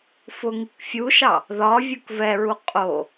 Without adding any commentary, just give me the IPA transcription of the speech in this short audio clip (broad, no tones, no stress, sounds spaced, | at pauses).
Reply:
f ʊ ŋ i k fʲ u ʃ ɑ | ð ɒ vʲ u k v ɛ ɹ u qʼ o